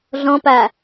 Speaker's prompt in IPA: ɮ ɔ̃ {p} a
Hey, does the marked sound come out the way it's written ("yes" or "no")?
yes